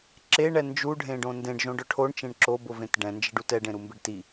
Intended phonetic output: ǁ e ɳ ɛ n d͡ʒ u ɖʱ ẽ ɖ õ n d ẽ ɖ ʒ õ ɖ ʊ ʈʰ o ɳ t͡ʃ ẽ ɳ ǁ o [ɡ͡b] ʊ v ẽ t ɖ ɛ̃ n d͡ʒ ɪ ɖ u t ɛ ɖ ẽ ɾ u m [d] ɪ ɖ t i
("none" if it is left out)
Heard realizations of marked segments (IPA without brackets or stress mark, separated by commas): b, b